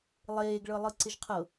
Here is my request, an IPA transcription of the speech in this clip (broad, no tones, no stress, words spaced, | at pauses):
lˠeːɡɭɤlˠɯǀɪʒ qʰɤ